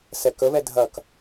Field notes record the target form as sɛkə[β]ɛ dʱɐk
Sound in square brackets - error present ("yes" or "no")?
no